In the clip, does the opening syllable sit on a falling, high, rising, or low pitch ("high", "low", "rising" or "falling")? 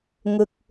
low